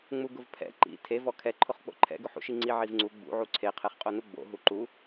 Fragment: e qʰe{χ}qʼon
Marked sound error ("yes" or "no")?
no